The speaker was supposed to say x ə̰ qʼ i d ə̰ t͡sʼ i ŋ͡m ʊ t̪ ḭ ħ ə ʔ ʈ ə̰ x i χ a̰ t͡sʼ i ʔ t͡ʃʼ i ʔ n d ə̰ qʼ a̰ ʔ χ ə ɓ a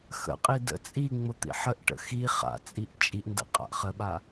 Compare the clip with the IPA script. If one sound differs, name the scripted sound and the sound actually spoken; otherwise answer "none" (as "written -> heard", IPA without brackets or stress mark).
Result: none